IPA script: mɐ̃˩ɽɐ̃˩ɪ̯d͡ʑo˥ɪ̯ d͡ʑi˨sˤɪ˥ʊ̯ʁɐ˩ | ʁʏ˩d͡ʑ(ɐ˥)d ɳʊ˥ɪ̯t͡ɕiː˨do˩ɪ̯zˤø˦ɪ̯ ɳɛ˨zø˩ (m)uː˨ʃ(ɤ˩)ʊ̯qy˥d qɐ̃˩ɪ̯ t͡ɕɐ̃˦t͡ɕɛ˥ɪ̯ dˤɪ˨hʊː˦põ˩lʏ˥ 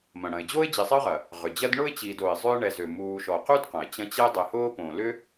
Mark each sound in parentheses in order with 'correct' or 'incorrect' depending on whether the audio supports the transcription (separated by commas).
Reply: correct, correct, incorrect